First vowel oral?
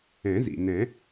no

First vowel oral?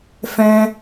no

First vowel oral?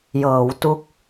yes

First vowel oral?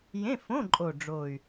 no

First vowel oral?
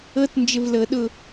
yes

